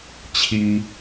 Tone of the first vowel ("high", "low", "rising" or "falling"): low